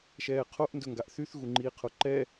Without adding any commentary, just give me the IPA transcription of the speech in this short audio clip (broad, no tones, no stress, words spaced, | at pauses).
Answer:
ʃɛːqʰoʔ ndɵŋɡaʔθyθ ɣuŋ͡ǃiːqʰoǃɛ